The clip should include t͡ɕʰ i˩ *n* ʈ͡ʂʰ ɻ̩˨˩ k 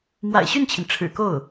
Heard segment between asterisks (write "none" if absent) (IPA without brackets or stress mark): n